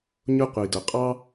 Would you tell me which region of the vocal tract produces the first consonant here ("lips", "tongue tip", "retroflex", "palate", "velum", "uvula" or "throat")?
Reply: palate